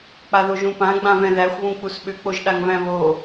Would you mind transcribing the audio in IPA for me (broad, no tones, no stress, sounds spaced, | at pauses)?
k͡p a ð o ʒ ũ p ã ɡ͡b ã v ɛ̃ ð æ xʷ β ũ k͡p u s ɓ ʏ k͡p o ʒ ɗ a ŋ v æ̃ β o